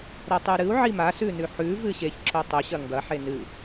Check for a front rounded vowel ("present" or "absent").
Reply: absent